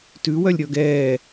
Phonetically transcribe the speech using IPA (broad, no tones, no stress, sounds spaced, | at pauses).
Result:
t ʉ w œ lʲ ɾʲ ɔ ɡ ɛː